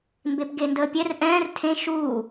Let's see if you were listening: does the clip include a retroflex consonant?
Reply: no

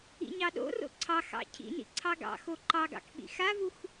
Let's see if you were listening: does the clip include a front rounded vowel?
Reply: no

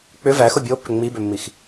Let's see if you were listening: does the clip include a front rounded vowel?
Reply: yes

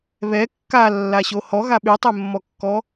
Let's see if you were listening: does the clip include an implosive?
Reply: yes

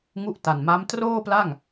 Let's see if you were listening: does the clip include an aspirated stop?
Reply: no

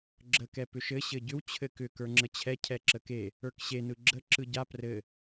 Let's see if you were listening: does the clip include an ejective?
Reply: no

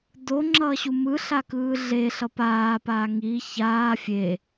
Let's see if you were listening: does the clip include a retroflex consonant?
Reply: no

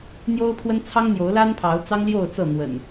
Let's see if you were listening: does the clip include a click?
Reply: no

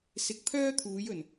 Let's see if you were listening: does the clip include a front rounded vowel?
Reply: yes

